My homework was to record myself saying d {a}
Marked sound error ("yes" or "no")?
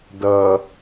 yes